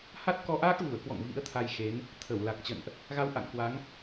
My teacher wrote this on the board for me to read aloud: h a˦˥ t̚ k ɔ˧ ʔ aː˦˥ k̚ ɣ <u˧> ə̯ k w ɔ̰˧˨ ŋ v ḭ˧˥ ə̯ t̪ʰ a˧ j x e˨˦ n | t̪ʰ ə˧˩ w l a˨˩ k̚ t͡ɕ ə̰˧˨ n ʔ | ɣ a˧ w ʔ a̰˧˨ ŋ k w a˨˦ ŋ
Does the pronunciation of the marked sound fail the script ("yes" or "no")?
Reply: yes